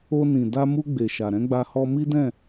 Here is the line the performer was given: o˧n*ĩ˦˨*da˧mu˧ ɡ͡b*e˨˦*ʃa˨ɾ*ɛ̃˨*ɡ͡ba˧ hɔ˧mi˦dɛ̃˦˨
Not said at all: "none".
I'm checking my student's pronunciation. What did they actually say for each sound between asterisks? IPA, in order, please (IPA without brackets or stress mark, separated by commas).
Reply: ĩ˨, e˨, ɛ̃˨˦